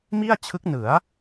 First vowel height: high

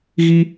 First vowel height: high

